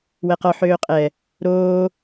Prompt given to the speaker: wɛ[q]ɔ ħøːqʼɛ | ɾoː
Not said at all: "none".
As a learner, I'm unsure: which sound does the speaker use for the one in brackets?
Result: q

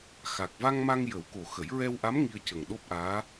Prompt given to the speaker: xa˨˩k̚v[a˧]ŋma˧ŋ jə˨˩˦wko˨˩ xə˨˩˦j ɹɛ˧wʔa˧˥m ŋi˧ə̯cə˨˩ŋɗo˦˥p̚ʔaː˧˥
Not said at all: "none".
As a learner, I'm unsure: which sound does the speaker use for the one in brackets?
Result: a˧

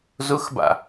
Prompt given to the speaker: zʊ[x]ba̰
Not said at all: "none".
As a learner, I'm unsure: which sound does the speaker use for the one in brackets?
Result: x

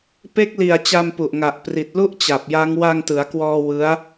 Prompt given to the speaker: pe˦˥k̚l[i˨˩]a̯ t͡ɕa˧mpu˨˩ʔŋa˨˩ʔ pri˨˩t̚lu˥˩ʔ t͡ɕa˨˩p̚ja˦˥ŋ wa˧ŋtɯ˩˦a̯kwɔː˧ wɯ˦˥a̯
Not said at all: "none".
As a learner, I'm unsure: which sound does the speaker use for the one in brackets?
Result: i˨˩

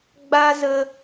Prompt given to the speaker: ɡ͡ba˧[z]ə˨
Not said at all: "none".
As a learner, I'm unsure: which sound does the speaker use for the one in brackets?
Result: z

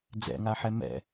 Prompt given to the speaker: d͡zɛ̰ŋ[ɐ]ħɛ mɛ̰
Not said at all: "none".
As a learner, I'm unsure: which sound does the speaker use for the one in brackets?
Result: a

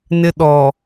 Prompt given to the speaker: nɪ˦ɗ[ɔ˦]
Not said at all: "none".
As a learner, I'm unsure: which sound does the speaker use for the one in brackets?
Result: ɔ˨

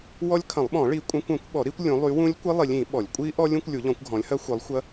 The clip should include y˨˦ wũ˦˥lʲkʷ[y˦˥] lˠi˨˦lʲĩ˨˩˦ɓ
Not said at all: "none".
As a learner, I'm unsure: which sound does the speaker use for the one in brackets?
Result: i˦˥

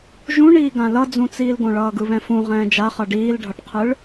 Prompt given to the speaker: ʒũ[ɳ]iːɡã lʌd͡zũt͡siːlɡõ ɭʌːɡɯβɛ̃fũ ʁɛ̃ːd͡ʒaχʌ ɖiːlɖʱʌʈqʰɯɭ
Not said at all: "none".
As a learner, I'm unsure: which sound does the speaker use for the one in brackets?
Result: ɳ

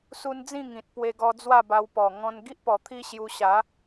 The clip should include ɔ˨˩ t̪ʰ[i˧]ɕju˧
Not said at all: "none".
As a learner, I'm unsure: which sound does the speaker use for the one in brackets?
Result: i˦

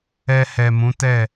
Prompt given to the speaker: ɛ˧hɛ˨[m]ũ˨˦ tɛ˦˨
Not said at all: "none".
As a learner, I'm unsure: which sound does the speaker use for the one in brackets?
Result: m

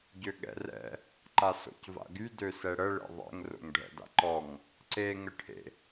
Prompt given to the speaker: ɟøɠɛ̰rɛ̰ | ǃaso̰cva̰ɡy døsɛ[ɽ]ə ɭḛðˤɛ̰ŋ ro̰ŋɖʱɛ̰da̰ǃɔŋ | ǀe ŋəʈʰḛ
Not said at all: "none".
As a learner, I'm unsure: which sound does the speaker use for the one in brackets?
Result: ɽ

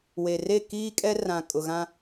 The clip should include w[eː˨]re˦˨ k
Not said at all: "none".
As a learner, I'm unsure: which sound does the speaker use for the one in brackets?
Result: e˨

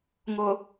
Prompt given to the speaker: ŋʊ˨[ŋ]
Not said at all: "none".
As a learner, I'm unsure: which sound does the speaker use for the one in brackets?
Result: none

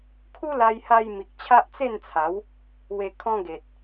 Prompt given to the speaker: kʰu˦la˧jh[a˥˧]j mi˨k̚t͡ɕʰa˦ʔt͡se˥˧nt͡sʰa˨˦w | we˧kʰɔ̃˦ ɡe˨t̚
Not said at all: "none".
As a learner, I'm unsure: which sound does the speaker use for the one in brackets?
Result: a˧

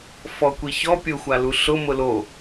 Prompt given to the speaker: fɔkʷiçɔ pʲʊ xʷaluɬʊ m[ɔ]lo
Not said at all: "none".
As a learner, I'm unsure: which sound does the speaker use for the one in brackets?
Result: ʊ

